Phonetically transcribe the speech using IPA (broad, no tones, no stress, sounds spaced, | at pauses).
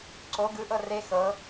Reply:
ǀ o ɡ ɯ ʔ ɤ r e x ɤ